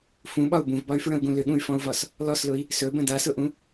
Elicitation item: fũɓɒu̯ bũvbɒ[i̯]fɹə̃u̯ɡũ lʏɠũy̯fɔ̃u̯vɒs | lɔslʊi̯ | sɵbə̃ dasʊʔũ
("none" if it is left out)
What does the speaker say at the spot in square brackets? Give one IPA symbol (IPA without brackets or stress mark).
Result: y̯